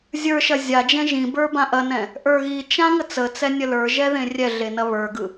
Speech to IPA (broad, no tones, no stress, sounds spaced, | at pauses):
zʲ ə˞ ʃ ɐ zʲ a d͡ʒ ɛ̃ ʒ ĩ b ə˞ b ã ʔ ɐ n ɛ̃ | ʔ ə˞ ɣ i t͡ʃ ã ŋ ə t͡s ə t͡s ɛ nʲ ə l ə˞ ʒ ɛ ð ẽ rʲ ɛ ɮ e n ɐ β ə˞ ɡ ɯ